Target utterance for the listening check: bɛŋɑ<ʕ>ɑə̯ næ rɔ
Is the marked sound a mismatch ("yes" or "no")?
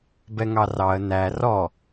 yes